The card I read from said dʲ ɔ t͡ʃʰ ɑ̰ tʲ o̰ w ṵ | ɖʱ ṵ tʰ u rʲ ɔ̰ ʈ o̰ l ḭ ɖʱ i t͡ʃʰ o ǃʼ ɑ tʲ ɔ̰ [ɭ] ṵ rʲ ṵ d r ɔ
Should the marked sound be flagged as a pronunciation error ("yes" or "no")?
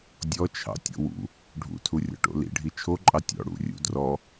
yes